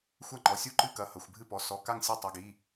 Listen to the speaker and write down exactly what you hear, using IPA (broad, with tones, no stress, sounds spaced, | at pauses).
xʷ ɐ˥˨ ŋ͡ǃ ɔ˩˧˩ sʲ u˥˨ ǃ ɨ˥˨ k ɐ˩˧˩ h ɐ˩˧˩ xʷ bʱ ɨ˥˨ p ɔ˩˧˩ s ɔ˩˧˩ k a˥˨ ŋ sʲ ɐ˥˨ tˤ ɨ˩˧˩ ɡ i˩˧˩